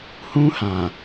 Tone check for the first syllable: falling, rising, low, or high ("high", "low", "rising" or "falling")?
high